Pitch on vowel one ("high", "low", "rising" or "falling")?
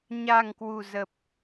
low